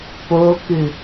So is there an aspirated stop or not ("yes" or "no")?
no